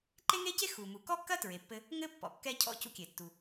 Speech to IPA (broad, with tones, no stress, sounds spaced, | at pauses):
ǃ e˥ ŋ e˥ c e˥ x u˩ m u˩ k ɔ˥ kː ɐ˥ t ɹ e˩ pː ɘ˥ | ŋ ɘ˥ pː ɔ̰˩ kː ɛ˥ cʰ ɔ̰˥ c ṵ˥ kʲ e˩ tː u˩